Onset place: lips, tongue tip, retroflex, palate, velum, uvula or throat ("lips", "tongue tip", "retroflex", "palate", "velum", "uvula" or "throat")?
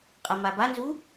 uvula